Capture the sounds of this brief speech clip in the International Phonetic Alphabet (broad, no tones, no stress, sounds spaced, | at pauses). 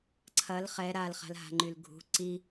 ǀʰ ɐ l χ ɛ ɾ a l χ a̤ l ɦ a̤ ŋ͡ǃ y l ɡʱ ṳ ǀ i